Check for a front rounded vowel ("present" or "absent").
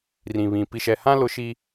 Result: absent